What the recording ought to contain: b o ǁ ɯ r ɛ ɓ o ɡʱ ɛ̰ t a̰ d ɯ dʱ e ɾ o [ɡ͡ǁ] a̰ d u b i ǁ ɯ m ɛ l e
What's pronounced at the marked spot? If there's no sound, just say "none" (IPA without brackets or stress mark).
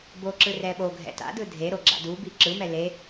ɡ͡ǁ